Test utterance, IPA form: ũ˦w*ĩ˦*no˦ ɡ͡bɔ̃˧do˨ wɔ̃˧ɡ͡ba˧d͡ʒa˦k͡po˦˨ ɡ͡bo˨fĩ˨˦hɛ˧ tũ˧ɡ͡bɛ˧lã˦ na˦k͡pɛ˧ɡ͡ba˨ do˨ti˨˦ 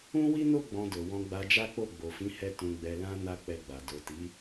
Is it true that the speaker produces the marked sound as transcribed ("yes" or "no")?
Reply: no